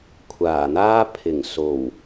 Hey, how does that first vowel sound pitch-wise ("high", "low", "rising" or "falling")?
low